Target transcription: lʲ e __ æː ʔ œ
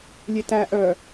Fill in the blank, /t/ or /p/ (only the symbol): t